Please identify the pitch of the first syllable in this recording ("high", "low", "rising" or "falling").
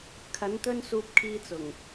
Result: rising